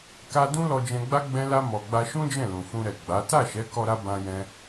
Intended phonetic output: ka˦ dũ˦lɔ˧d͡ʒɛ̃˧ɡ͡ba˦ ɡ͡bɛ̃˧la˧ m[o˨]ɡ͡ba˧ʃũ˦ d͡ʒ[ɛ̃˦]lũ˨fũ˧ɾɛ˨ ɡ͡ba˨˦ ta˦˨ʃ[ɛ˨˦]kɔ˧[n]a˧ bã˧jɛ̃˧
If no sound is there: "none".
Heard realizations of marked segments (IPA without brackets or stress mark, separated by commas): ɔ˨, ɛ̃˦˨, ɛ˨˦, ɾ